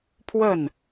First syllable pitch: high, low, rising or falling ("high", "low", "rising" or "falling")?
falling